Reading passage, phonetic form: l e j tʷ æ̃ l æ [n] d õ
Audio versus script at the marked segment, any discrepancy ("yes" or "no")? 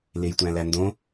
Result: no